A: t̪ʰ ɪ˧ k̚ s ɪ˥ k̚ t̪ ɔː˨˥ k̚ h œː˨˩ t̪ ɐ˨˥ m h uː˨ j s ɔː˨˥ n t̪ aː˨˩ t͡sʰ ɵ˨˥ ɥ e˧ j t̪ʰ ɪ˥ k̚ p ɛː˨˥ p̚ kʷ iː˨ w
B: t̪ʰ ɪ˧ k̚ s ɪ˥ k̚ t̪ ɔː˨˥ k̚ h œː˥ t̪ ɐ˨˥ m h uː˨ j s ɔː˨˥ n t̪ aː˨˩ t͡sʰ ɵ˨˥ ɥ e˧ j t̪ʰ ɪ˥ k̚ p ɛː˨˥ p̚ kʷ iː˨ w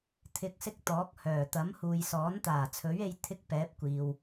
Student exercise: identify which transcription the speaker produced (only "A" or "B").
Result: A